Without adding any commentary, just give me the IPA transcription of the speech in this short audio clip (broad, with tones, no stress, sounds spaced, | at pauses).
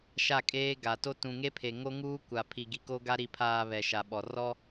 ʃ a˦˨ kʼ eː˦ ɡ a˨ t o˦ t ũ˨ ŋ e˦ pʰ e˨ ŋ o˦ ŋ uː˦ kʷ a˨ pʰ i˨ ɡ i˨ k o˦ ɡ a˦ ɾ i˨ pʰ aː˨ β ɛ˨ ʃ a˨ ɓ ɔ˨ r ɔ˦